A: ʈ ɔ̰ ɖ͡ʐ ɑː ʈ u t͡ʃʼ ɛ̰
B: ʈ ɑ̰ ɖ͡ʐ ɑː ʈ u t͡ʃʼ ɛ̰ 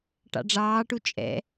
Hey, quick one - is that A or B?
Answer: B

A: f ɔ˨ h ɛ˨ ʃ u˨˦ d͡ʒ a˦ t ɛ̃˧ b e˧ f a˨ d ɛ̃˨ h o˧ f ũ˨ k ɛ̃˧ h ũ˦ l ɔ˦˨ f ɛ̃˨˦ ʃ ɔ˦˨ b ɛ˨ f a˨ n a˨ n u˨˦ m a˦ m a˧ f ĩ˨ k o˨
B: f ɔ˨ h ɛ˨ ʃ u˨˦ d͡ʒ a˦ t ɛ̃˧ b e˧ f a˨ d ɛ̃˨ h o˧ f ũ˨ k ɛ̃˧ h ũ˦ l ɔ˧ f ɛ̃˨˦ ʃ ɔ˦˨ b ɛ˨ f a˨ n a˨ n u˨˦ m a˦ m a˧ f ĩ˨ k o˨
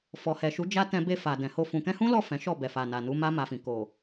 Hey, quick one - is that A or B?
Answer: A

